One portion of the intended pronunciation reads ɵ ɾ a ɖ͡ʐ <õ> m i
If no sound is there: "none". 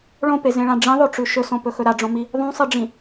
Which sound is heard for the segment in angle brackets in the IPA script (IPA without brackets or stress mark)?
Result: õ